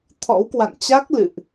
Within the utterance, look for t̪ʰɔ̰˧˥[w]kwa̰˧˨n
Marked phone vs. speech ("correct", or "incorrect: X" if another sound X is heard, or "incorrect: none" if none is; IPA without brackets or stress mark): correct